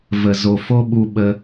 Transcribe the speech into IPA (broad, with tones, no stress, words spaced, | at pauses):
və˨zo˨ fo˦ɓu˧ ɓə˧